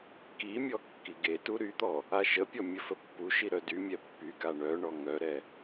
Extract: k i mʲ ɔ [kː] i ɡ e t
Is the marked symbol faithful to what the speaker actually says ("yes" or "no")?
yes